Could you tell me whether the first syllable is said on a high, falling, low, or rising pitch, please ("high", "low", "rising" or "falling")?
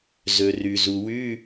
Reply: low